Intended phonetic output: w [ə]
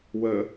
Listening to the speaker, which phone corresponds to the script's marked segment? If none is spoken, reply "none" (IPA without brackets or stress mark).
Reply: ə